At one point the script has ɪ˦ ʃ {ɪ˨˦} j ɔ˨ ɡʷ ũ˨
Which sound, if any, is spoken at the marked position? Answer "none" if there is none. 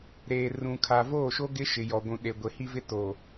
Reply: ɪ˨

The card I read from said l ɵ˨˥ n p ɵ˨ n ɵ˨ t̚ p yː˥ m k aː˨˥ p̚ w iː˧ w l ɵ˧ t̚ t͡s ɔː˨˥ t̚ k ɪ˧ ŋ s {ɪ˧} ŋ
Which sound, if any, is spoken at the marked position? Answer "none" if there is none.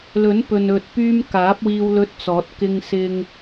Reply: ɪ˧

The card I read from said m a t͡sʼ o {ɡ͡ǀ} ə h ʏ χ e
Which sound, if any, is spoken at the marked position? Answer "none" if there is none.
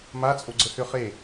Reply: ɡ͡ǀ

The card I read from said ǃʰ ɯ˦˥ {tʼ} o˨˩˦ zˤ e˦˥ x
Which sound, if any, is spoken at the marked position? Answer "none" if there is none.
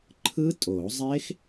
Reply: tʼ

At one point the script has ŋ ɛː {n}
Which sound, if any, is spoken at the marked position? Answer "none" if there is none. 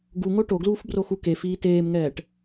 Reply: ʈ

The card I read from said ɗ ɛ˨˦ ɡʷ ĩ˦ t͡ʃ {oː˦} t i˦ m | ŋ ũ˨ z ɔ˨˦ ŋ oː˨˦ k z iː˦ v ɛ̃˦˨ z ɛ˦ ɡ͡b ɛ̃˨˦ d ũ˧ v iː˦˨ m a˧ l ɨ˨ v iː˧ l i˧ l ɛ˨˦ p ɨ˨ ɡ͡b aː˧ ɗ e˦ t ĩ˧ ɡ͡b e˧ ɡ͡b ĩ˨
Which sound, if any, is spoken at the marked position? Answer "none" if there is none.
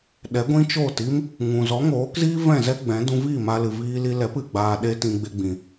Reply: oː˦˨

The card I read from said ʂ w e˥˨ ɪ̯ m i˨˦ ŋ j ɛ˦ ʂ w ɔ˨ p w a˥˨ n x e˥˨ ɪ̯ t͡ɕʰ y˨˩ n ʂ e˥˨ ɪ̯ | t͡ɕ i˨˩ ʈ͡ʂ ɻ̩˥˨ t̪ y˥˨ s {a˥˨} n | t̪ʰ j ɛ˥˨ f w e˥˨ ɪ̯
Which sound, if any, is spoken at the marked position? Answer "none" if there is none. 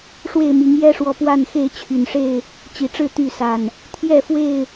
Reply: a˨˩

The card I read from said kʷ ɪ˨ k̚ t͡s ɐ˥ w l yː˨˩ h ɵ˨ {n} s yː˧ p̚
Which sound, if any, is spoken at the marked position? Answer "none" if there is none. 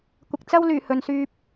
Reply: n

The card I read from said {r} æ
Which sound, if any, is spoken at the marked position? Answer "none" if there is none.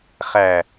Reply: χ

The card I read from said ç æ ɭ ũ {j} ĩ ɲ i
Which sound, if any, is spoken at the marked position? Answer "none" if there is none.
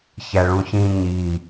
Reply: ç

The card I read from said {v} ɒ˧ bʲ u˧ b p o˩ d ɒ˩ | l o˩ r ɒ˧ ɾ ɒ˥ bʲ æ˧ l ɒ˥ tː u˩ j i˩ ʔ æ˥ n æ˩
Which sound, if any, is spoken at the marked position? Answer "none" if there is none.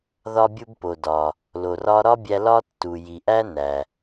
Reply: ð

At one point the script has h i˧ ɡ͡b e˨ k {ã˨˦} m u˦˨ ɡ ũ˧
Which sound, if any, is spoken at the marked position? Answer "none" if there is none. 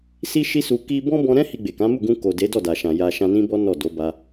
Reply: ã˨˦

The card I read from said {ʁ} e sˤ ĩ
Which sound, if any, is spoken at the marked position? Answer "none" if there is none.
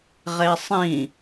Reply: ʁ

